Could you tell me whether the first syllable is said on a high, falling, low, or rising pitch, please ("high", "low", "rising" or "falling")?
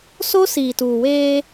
high